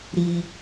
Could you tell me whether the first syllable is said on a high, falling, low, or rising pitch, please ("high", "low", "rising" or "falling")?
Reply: high